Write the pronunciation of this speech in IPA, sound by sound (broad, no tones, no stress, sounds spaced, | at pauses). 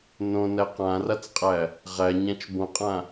n õ n æ q ã r a t͡s qʼ æ | ʁ æ ɲ ã t͡ʃ b õ qʼ ã